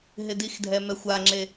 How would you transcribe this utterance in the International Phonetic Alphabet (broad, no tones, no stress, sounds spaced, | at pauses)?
ɦ ɪ d i x dʱ ɛ m ɛ xʷ a ŋ͡ǁ e